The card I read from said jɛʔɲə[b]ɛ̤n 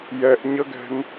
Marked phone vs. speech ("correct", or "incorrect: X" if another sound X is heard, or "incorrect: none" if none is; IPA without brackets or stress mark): incorrect: ɡ